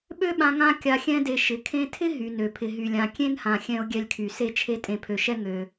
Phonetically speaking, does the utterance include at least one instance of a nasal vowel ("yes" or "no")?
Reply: yes